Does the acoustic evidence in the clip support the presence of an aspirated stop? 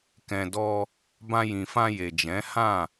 no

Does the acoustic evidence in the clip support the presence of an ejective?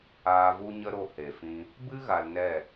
no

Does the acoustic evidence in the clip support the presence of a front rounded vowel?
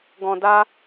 no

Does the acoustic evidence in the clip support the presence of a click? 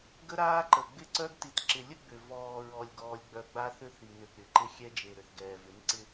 yes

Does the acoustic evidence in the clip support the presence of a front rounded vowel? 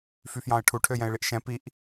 yes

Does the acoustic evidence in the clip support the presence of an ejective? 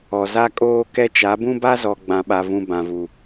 yes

